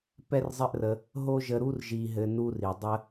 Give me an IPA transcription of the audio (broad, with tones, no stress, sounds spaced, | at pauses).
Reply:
p ɛ˦ r zˤ ɘ˦ ʔ r ə˧ | ɦ o˦ ʒ ə˧ ɾ u˦ r ʒ i˧ ɦ ɘ˧ n u˧ r i˨ dˤ ə˧